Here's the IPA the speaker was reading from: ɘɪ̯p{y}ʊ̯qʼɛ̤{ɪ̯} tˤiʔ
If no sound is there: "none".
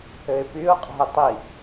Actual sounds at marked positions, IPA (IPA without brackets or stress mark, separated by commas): y, ɪ̯